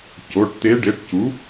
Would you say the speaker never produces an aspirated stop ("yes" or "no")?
yes